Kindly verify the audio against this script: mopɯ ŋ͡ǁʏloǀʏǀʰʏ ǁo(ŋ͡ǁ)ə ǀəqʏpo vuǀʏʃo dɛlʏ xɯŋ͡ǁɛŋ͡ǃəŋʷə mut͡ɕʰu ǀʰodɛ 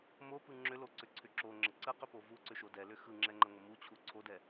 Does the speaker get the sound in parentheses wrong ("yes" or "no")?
no